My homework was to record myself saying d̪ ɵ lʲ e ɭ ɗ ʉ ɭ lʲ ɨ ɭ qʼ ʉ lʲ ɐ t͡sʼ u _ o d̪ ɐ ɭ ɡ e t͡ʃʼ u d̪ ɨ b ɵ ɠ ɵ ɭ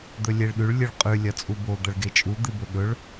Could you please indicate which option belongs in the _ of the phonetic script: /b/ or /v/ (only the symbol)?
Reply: b